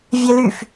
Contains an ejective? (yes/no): no